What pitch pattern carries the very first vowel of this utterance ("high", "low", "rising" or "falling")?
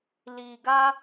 low